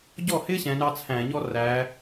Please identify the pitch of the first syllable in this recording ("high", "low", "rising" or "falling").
falling